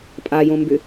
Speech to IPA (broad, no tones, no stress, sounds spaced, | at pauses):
pʼ a j õ m b ʏ